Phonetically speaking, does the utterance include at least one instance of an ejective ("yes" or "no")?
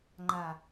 no